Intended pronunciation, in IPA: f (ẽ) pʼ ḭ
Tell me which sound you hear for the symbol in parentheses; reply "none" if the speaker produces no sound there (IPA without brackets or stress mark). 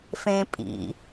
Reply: ẽ